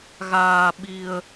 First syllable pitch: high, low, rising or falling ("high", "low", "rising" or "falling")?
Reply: low